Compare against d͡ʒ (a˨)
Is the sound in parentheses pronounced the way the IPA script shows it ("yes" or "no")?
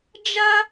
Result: no